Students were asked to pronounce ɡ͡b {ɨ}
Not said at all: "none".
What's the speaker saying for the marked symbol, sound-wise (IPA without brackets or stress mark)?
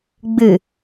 ɨ